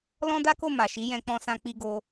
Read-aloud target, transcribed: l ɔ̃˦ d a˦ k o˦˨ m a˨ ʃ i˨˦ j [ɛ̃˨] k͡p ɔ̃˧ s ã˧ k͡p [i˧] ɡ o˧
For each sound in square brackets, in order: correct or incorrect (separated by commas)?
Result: incorrect, correct